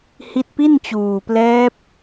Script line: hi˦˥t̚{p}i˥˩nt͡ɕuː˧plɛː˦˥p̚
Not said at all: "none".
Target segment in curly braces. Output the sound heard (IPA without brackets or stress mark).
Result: p